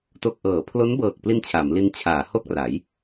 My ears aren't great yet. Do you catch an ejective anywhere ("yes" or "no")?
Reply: no